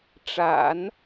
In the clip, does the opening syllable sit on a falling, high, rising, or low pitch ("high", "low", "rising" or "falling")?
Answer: low